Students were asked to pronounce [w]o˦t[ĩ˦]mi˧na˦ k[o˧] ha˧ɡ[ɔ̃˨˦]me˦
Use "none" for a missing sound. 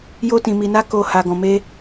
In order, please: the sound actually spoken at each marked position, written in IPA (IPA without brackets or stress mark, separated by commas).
j, ĩ˧, o˧, ɔ̃˧